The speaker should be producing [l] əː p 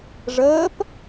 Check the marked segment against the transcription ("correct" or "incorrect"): incorrect